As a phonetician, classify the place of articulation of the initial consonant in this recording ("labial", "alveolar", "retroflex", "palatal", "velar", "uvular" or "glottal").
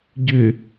palatal